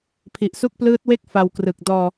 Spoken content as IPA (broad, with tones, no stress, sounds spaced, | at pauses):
pʰ i˨˩ ʔ s u˦˥ k̚ p l ɯː˦˥ t̚ w e˥˩ k̚ f a˧ w k r ɯ˨˩ k̚ d ɔː˧